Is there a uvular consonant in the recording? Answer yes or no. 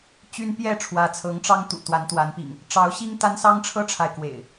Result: no